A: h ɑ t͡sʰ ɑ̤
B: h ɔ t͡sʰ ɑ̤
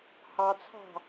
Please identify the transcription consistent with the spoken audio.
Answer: A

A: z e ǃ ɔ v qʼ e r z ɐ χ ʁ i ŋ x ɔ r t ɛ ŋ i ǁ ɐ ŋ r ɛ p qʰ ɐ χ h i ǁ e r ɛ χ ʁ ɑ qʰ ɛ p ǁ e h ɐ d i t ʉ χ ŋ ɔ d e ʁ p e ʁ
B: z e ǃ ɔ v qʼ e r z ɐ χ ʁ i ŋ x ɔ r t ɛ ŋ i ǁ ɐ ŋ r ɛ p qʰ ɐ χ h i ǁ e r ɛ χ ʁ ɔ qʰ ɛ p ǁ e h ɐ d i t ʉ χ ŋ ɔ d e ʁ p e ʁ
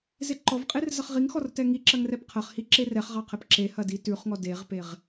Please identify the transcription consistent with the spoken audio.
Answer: A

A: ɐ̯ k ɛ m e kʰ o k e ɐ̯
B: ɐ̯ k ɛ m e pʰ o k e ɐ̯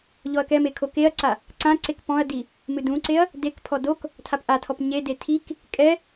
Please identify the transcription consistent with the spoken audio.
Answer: A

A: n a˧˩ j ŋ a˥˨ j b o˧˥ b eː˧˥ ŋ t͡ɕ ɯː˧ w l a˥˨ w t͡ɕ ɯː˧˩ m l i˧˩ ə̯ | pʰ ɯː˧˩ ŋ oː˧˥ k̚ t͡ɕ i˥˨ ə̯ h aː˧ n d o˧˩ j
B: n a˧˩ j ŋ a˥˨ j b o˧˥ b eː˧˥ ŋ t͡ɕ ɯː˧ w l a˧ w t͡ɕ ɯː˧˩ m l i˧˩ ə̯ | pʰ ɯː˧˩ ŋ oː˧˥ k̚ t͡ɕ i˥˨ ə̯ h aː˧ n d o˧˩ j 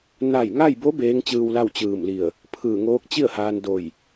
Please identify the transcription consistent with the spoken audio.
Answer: A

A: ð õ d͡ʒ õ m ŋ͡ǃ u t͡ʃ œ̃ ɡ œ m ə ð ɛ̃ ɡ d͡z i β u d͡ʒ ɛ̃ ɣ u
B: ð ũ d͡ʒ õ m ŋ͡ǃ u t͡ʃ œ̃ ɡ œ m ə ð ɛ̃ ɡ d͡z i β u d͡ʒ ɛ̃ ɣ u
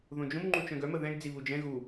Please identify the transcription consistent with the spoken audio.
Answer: A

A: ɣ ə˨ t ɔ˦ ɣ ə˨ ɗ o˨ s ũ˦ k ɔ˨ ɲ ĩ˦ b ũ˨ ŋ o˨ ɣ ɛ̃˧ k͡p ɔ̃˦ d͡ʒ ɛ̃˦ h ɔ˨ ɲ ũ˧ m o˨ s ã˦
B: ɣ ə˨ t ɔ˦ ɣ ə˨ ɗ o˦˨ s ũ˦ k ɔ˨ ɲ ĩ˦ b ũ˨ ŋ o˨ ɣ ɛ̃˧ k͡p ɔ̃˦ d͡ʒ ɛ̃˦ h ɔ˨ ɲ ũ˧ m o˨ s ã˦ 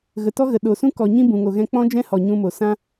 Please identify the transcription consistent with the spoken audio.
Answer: A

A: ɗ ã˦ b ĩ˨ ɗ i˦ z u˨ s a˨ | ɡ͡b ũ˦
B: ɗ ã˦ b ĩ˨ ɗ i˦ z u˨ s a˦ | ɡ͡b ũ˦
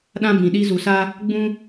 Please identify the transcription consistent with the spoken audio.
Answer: B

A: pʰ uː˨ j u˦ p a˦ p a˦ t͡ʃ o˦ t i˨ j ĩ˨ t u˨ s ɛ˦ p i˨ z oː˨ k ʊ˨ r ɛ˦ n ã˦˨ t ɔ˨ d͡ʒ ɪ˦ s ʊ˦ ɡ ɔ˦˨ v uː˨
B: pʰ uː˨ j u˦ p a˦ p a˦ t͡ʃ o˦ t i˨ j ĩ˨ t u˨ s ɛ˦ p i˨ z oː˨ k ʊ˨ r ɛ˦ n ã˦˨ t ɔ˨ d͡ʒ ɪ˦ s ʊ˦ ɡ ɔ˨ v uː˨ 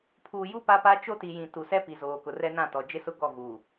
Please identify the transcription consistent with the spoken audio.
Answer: A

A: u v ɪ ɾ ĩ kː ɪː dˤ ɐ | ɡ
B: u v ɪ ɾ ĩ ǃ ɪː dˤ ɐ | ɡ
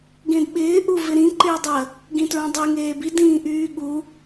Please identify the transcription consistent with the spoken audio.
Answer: B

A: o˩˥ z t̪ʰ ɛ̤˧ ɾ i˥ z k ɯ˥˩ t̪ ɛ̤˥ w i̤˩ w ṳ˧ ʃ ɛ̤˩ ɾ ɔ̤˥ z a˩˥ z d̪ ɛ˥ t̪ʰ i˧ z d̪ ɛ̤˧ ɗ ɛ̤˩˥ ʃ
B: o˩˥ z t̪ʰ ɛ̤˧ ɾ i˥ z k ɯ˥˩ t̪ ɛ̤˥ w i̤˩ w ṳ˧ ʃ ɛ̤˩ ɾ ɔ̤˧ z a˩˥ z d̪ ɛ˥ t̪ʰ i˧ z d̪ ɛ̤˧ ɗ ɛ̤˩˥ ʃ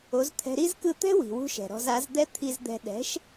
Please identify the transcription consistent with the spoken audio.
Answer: B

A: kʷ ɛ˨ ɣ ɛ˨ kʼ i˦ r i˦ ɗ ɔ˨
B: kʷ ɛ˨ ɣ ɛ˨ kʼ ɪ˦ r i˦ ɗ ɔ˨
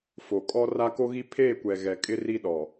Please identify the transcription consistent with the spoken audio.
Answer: B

